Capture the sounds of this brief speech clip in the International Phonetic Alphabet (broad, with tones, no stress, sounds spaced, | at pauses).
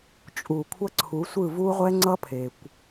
t͡ʃʼ u˨ kʷʰ ʌ˦ ǀʰ u˨˦ sʷ ɯ˦˨ v u˦ ʁʷ ɛ˦ ŋ͡ǀ ʌ˦ pʰ e˨ kʷ